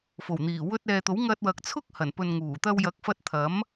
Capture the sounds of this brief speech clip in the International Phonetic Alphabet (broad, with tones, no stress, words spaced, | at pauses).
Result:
fo˨˩wn̪iː˨˩ wɵ˧t̚ɛː˨t̪o˨˥w ŋɐ˧t̚wɐ˨k̚t͡sʰʊ˥k̚ hɐ˨˩n pɵ˨nŋuː˨˩ t̪ɐ˧wjɐ˨˥k̚fɐ˧t̚ t̪ʰɐ˨˥m